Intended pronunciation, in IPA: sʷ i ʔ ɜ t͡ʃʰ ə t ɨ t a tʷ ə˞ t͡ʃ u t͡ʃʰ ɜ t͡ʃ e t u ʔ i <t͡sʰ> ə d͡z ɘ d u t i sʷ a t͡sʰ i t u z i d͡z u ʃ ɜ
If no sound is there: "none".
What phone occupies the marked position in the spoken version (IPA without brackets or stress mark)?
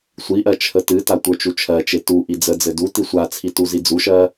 d͡z